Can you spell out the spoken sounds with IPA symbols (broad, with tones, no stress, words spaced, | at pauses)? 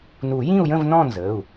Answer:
nu˨˩˦jĩ˥˧u̯jə̃˥˧v nɔ̃˥˧nzə˩˧˩u̯